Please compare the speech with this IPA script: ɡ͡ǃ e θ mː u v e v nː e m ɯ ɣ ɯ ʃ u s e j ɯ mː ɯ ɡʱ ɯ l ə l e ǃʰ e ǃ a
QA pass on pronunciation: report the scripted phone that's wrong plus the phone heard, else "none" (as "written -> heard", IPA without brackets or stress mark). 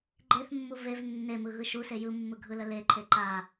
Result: none